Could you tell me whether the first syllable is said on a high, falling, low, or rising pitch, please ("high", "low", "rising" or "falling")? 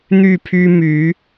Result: falling